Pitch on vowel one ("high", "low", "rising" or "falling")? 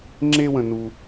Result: high